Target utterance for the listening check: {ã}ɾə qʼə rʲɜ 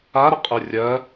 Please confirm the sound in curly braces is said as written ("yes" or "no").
no